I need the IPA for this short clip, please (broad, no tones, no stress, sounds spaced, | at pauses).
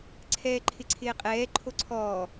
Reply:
ǀʰ ɛː ǃʰ ɪ ǀʰ ɪː qʼ ɛː ǃʰ o ǀʰ ɔː